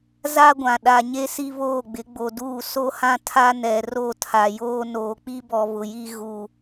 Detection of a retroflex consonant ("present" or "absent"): absent